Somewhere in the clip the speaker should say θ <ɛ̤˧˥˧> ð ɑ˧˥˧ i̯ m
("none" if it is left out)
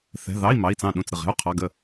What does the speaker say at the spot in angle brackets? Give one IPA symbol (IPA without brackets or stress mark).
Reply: ɛ̤˧˥˧